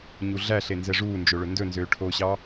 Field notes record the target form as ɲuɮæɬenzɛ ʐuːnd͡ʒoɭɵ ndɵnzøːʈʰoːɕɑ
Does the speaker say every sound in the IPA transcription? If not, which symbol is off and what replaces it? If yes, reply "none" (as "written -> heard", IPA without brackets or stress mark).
none